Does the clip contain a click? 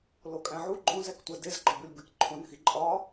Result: yes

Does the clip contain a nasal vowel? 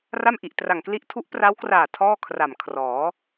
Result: no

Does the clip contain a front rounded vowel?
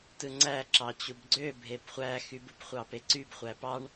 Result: yes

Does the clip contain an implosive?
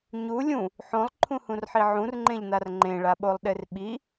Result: yes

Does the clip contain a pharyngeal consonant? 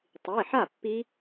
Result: yes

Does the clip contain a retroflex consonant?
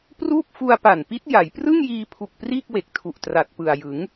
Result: no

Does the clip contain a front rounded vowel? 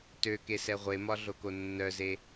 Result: yes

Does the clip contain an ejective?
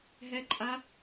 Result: yes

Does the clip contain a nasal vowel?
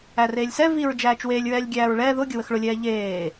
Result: no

